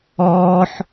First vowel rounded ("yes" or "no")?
yes